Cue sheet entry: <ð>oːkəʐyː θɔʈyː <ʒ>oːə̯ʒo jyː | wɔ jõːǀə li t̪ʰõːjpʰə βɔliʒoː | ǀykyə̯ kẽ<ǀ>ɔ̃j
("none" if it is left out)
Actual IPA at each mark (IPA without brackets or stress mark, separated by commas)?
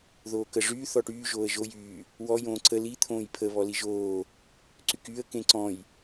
ð, ʒ, ǀ